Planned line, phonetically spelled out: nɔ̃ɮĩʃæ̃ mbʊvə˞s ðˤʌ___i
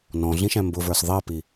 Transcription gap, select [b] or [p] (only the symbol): p